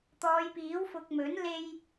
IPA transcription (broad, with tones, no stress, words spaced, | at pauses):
t̪ɔː˨˧jpiː˨˥w fʊ˧k̚ mɵ˨˥n le˥j